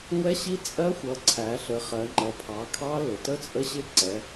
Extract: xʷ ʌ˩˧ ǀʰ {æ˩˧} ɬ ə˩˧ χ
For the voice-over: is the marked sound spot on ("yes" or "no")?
yes